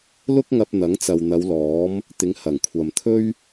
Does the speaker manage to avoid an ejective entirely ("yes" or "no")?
yes